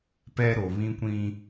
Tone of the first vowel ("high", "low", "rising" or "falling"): high